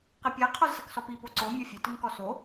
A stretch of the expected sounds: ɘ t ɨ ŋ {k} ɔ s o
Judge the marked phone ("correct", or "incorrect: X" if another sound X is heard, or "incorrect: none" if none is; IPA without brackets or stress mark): correct